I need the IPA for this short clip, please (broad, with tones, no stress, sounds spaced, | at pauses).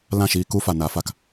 l ã˦˨ ʃ iː˧ k u˦ f a˨ n a˨˦ f a˨ k